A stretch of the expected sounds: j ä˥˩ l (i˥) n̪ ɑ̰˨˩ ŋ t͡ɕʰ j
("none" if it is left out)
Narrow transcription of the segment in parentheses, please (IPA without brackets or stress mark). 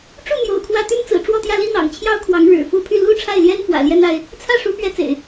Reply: i˥